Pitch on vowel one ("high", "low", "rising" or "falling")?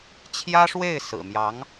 high